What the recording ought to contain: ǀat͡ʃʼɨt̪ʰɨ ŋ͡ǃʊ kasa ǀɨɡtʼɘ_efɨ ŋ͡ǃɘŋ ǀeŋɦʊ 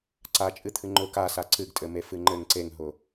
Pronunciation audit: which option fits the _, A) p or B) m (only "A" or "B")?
B